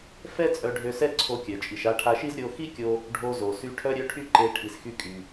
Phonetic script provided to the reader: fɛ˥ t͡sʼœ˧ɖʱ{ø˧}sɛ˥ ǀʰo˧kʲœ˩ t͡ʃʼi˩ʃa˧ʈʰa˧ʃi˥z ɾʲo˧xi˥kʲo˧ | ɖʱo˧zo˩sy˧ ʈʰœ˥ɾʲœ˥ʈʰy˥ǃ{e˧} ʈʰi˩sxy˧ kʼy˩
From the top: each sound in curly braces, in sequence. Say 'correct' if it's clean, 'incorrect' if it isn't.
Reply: correct, correct

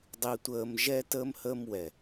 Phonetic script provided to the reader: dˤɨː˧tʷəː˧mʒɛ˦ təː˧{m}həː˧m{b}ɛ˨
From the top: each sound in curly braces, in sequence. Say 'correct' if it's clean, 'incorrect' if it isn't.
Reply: correct, incorrect: w

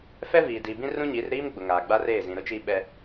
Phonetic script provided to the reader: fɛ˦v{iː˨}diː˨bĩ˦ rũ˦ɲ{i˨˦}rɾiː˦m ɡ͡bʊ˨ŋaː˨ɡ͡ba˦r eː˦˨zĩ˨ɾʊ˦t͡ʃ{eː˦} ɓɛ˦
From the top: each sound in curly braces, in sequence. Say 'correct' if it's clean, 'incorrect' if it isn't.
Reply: correct, correct, incorrect: iː˦

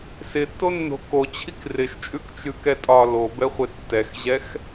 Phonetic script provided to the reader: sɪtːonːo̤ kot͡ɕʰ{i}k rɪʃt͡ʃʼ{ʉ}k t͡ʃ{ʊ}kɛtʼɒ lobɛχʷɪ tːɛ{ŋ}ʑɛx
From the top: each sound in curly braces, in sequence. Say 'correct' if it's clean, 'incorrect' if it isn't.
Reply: correct, correct, incorrect: ʉ, incorrect: x

